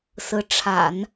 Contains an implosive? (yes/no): no